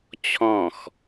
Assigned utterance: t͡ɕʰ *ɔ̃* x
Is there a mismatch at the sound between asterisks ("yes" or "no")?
no